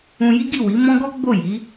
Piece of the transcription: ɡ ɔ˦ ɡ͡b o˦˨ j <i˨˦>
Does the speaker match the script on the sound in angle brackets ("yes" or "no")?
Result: yes